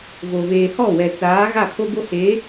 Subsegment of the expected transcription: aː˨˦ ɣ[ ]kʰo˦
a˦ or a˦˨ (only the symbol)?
a˦˨